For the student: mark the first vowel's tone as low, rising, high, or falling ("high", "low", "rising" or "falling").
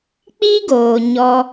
high